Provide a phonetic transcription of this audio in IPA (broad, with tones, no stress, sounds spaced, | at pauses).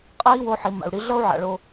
qʼ a˦ i̯ w o˧ ħ i˨ m a̰˨ u̯ ɽ i˧ ɮ ʌ˦ u̯ ʕ a̰˨ ɭ o˧